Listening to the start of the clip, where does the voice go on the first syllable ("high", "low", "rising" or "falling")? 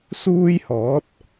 high